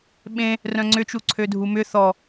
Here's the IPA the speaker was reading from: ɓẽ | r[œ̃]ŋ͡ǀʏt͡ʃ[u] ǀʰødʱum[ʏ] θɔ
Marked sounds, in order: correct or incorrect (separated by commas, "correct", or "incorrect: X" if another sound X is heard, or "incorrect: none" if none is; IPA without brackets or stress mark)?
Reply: correct, correct, correct